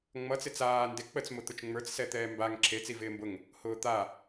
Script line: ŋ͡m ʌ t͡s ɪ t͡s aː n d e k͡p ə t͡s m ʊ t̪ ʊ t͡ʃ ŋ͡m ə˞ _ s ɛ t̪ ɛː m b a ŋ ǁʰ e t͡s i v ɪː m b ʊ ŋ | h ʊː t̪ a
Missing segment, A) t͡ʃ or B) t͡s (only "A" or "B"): B